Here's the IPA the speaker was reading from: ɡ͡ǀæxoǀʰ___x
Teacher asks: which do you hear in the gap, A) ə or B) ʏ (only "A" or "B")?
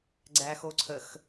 A